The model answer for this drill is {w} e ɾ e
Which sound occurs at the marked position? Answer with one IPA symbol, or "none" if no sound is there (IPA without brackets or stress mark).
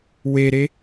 w